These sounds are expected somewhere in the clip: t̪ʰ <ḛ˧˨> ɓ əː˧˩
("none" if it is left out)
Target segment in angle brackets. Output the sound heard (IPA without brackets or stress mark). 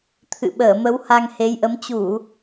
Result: ɨ̰˧˨